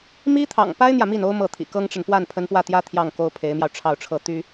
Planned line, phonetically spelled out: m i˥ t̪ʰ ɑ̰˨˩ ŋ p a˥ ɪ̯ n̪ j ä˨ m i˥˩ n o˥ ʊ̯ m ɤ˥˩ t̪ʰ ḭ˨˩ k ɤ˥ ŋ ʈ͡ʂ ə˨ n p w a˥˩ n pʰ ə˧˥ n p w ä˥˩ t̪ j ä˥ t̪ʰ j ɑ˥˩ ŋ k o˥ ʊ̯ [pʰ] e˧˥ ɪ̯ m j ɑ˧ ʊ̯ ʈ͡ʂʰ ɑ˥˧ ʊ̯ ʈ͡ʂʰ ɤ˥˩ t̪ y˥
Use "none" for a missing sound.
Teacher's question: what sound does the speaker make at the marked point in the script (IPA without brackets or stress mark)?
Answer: pʰ